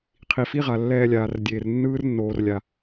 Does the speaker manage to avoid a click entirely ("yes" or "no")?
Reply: yes